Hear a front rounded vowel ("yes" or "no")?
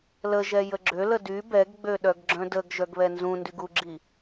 yes